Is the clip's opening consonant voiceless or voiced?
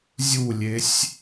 voiced